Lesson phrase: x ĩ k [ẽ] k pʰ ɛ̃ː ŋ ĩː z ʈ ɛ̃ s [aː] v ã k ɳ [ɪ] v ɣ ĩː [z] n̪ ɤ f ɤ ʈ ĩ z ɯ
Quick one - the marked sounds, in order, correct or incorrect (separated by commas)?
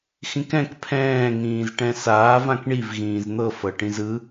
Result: incorrect, correct, incorrect, correct